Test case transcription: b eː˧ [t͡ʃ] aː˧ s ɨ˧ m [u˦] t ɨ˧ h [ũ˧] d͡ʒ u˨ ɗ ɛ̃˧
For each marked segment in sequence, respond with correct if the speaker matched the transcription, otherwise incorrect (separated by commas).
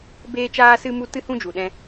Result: correct, incorrect, correct